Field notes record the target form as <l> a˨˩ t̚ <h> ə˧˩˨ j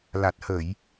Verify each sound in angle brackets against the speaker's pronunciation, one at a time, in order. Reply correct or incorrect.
correct, correct

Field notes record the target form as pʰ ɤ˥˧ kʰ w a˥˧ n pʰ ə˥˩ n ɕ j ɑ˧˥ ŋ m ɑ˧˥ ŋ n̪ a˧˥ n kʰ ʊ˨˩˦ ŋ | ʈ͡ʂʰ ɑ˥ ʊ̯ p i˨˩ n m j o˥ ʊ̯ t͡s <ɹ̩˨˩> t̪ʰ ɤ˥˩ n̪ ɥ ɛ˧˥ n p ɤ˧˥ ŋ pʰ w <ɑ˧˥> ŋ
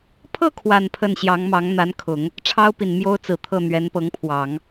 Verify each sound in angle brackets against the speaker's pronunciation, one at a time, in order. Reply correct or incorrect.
correct, incorrect: ɑ˨˩˦

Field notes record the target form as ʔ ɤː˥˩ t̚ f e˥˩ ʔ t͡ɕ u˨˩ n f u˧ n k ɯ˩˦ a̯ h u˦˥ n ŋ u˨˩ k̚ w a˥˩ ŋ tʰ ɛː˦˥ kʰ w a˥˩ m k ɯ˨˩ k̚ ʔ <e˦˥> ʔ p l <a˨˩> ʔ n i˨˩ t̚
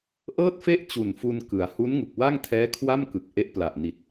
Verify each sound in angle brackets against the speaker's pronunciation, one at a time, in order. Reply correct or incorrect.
correct, correct

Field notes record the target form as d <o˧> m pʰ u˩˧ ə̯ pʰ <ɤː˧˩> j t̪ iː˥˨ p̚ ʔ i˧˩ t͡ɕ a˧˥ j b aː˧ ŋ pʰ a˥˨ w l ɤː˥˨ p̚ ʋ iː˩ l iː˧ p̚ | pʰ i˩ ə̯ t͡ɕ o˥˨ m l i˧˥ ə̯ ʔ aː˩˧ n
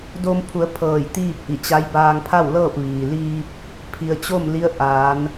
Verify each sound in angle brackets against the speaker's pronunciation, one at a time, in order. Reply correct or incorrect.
correct, correct

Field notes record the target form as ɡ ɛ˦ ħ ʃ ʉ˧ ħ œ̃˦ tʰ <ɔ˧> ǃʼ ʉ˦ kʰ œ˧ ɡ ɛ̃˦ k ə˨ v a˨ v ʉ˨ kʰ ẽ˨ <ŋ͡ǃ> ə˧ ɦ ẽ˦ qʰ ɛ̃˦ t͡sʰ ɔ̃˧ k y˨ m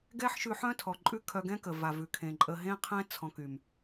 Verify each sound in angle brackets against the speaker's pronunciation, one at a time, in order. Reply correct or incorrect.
incorrect: ɔ˨, incorrect: ǃʼ

